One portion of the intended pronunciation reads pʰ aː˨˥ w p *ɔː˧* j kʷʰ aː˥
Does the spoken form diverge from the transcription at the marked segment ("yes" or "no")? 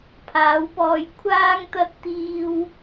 no